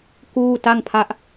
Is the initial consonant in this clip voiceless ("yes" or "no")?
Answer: yes